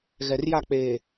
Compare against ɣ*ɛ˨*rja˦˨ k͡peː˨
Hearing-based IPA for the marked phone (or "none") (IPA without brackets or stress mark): ɛ˨